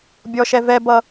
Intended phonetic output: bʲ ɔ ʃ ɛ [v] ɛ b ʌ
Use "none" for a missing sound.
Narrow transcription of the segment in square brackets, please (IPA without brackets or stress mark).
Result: v